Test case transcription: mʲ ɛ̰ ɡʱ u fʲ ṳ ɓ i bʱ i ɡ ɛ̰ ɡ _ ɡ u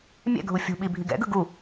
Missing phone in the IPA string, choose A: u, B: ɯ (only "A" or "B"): B